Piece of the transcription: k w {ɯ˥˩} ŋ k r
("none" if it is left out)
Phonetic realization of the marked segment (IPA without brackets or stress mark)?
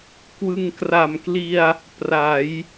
ɯ˧